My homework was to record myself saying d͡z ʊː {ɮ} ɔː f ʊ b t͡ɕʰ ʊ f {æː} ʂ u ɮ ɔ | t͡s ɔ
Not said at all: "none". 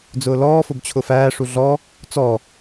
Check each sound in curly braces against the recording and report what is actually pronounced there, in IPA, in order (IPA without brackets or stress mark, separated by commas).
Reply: l, æː